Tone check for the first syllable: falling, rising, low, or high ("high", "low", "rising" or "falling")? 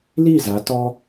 falling